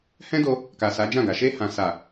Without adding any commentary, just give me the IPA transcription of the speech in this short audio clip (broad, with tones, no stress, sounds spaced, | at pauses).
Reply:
h ɛ̃˦ d o˧ | k a˨ s a˨˦ d͡ʒ ã˦˨ ɡ a˨ ʃ e˧ h ã˨ s a˨